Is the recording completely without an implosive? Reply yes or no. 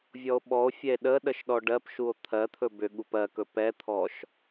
no